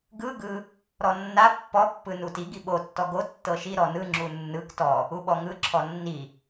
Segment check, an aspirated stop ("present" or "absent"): present